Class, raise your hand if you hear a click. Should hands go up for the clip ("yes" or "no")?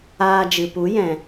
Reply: no